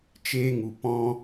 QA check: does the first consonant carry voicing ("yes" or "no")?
no